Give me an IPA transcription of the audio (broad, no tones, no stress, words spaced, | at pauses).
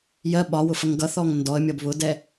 jɜ ɓɒwʊfʌŋ ɡʌθɔŋ ndɔə̯mʲʌb βʊdɛ